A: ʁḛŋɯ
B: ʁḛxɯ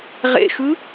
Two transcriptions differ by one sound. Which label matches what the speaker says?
B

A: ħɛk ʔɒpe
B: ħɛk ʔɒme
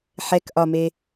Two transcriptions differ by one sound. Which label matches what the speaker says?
B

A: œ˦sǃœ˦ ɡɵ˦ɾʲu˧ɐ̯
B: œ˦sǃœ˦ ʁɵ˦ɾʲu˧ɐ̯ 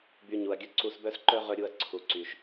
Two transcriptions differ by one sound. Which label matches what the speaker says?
B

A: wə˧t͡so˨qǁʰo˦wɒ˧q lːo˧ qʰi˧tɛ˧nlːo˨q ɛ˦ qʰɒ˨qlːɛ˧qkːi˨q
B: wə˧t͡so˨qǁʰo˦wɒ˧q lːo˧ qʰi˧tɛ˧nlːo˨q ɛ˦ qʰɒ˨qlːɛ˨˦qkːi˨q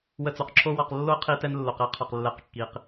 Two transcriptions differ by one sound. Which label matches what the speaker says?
B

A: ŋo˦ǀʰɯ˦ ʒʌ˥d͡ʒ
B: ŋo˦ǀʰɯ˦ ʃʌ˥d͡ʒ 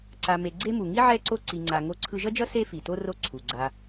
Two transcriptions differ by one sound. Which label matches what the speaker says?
A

